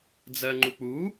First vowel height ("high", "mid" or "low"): mid